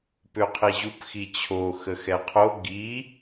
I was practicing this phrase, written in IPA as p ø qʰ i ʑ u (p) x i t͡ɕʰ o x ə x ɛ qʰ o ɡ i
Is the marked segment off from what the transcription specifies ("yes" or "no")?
no